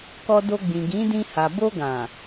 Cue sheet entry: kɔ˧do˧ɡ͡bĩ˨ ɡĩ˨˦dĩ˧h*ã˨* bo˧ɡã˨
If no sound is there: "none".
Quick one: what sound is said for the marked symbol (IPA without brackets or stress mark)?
a˨